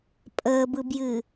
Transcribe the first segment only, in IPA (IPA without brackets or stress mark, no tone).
pʼ